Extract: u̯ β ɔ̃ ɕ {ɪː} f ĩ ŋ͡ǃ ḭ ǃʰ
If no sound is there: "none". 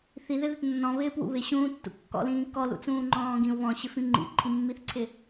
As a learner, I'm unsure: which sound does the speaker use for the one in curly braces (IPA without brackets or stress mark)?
ɪ